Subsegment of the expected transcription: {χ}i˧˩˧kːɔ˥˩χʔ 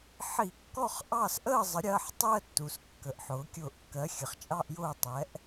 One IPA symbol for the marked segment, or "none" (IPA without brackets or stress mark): ħ